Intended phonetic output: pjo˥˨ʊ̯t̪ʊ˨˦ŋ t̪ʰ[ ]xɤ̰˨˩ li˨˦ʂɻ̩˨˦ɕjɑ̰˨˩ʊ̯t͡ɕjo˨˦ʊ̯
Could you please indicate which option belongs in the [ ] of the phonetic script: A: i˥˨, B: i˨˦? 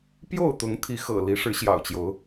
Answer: B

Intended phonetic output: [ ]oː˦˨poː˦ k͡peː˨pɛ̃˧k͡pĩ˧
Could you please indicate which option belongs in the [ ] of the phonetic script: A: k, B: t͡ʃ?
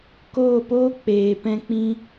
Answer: A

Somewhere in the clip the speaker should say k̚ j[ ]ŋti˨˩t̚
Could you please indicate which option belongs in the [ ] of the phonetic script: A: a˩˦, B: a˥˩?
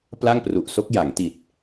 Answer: A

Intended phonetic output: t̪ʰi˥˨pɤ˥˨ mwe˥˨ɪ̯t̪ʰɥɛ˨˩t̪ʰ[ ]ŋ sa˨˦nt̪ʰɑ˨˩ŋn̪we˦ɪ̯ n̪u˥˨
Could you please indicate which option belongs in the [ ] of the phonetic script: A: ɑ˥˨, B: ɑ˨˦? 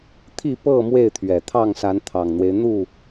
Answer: A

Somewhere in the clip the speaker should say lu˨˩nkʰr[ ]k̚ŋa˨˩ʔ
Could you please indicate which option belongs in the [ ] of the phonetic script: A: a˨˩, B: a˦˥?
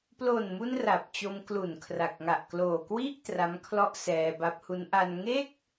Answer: A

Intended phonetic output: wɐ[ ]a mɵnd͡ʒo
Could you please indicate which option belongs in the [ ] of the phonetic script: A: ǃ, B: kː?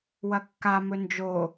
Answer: B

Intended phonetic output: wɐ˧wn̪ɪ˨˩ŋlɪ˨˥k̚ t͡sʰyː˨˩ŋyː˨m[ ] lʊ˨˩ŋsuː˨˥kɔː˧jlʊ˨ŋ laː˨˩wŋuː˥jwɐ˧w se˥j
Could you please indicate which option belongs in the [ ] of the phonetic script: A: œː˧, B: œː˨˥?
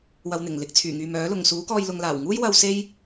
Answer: B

